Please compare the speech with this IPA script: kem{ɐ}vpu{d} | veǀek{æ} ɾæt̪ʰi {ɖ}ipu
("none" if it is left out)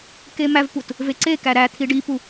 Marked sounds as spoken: æ, t, æ, ɖ

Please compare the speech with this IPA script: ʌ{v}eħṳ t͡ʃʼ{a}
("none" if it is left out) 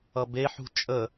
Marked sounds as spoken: b, ə

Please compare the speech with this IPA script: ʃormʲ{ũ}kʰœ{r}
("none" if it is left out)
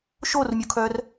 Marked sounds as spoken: u, r

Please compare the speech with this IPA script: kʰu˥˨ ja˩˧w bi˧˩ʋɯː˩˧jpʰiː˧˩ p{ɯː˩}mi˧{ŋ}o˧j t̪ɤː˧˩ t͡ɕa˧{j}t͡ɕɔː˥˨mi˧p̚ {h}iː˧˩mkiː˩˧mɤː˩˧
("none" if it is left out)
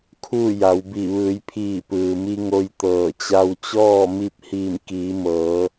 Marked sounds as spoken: ɯː˩, ŋ, w, h

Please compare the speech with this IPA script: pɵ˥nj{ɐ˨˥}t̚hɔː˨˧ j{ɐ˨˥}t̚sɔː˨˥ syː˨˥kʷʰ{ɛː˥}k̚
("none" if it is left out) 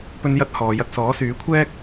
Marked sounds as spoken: ɐ˥, ɐ˧, ɛː˥

